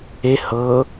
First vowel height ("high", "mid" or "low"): mid